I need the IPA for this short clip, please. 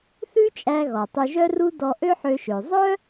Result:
θʉ˥t͡ʃʼæ˧ɣɔ˩ tˤy˧ʒœ˥ru˥ dɔ˧ʔø˥ħø˧ʃø˩ zˤœ˥

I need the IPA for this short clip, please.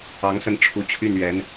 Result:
ɑ˧˥ŋ sə˥˩nʈ͡ʂʰu˧˥t͡ɕʰy˥˩n ɥɛ˧˥n

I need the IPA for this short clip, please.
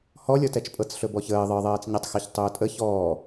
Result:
hɔlʲɔtɛt͡ʃpʼɤt͡s ɬɵbɔçəː ðˤɤðˤɜːt͡sɲatˤxɜç tˤɵːtʼə çɔː

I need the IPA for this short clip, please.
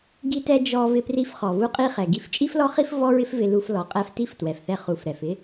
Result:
ɡi˥tɛ˥ d͡ʒɔ˧ vɪ˧pri˧fχɔ˩ vu˥qʼi˥χɛ˩ ɡi˧ft͡ʃʼi˥flɔ˥χi˥f vɔ˥ɹɪ˥f vɪ˧lu˧f lɔ˩qʼɛ˧f ti˥ftwɛ˩fθɛ˧ χu˩f ɾɛ˩fɪ˥

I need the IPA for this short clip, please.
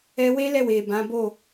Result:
ɛ˧we˦lɛ˦˨we˨ bã˨˦ bo˦˨

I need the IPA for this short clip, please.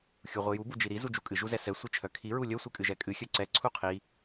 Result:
xʲuʁʷiju bud͡ʒiɾi zud͡ʒukʼɨ ʒuzɛsɛ sʷit͡ʃʰœkʰi ɹulʲœ sʷɨkʼɨʒɛkʼɨ xʲœǀɛ ǀʰuqʰi

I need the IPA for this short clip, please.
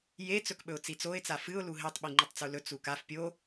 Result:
je t͡sɵkɓɵʊ̯t͡sit͡soɪ̯ t͡safɨʊ̯ luɦetˤ ɓiŋ͡ǃitˤt͡sulɵ t͡sukaf pʲo

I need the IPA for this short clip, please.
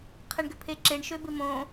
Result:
qʰɛɳɡʏpʰeǁeɳ ʃøbɪmõ

